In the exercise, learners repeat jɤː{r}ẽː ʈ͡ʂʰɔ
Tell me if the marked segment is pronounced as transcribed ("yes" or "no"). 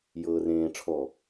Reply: yes